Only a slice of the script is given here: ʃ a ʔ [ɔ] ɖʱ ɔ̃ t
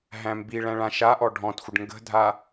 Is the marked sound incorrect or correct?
correct